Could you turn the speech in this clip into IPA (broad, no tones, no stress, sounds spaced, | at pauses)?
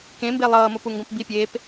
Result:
k ẽ m b e lˠ ʌː m o p u ŋ ɡ õ p b i pʲ eː p